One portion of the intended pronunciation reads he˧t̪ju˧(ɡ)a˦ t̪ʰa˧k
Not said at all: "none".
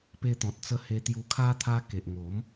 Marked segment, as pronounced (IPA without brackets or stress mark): kʰ